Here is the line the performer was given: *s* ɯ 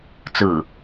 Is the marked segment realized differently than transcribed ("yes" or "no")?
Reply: yes